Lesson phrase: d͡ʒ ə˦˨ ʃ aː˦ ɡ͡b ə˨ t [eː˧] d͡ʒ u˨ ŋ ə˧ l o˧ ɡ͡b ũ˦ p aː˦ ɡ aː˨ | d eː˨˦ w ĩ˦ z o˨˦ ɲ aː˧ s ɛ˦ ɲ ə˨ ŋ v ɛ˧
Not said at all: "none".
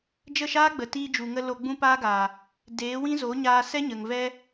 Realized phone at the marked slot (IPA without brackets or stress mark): iː˧